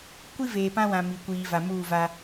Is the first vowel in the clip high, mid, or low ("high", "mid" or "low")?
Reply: high